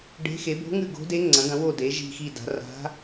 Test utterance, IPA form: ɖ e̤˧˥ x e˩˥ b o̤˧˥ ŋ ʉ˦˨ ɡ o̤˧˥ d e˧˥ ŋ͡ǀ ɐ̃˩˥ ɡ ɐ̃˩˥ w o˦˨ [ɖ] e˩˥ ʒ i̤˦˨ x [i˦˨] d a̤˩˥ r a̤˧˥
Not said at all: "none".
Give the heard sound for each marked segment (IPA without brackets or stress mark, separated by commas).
d, i˦˨